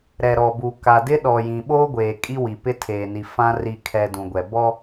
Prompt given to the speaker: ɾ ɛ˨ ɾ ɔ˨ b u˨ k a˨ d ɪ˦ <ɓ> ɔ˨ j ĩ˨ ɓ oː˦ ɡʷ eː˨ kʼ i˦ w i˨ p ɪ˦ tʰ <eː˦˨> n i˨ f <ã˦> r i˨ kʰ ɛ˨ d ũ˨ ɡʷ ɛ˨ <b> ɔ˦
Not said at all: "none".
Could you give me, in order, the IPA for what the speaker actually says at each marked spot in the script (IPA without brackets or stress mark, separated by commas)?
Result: ɗ, eː˨, ã˦, b